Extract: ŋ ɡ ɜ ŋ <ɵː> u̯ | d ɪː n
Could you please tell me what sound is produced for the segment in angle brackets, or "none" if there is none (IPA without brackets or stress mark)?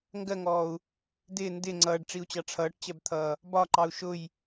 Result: ɔː